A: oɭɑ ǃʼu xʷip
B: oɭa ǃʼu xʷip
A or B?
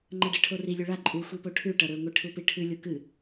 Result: B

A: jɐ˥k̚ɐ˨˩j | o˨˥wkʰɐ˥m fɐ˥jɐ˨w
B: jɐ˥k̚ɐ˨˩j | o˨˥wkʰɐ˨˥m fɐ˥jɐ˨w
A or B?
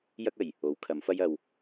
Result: B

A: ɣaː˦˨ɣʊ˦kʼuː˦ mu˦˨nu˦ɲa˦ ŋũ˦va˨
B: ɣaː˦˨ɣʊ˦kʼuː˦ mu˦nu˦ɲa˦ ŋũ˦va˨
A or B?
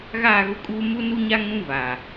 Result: B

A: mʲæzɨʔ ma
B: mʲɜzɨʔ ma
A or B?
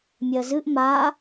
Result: B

